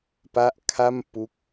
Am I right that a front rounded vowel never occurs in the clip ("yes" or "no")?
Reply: yes